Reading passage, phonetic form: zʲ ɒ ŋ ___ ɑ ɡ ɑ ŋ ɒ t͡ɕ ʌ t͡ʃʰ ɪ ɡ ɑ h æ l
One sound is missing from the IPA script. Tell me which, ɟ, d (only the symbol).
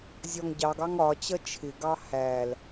ɟ